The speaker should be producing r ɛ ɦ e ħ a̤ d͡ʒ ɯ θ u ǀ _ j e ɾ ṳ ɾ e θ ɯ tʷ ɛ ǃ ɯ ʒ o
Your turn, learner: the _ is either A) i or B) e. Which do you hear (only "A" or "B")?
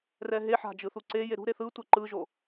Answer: B